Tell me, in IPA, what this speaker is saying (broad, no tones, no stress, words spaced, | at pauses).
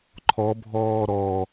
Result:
ǃʰɔbʱɔː ɾɔ